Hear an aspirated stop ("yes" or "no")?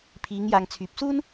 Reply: yes